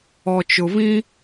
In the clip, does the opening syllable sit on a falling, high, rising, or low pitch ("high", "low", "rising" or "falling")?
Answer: low